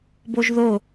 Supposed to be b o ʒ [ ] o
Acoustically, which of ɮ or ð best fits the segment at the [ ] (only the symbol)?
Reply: ð